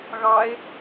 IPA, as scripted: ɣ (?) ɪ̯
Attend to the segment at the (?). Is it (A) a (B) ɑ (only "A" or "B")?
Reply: B